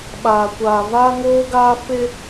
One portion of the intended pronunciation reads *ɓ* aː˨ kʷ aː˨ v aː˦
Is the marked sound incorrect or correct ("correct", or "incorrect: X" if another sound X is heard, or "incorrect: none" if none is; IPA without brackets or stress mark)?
correct